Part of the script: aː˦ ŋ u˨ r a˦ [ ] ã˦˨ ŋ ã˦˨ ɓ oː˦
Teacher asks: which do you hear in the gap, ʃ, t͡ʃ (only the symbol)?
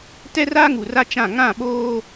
t͡ʃ